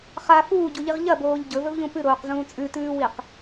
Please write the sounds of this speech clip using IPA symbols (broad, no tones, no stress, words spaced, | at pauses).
χa fuːɟuʎiʁ ʎɐboːʎ ɟɵvɵvʎũ pɨɾoːqzũː t͡sʼʉtʉːwiq